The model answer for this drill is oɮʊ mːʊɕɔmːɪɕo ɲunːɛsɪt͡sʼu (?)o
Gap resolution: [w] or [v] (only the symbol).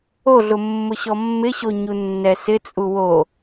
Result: w